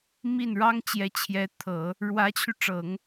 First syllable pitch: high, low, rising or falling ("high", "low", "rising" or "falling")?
falling